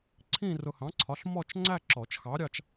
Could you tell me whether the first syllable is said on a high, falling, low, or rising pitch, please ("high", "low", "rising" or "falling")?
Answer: falling